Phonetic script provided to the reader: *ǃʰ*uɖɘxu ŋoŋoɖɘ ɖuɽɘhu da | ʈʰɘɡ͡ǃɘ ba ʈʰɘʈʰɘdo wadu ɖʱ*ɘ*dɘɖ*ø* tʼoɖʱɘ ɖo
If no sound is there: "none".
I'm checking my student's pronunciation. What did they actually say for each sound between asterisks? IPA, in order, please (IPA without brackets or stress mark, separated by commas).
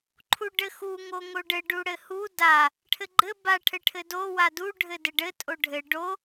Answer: ǃʰ, ɘ, ɘ